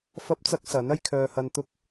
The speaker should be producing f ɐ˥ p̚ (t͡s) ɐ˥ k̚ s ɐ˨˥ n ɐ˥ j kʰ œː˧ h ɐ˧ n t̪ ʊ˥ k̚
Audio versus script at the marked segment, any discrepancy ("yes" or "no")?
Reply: no